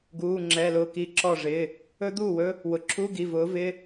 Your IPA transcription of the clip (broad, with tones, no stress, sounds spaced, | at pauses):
ɡ uː˩˧˩ ŋ͡ǁ ɛ˩˧˩ l ʊː˧˩ k i˨˦ ǁ ɔ˧˩ ʐ ɪ˩˧˩ | ɵ˦˥ d̪ uː˥˩ w ɵ˦˥ | w ʊ˩˧˩ ǁʰ u˧˥˧ ɡ i˩˧˩ v ʊː˨˦ v ɪ˧˥˧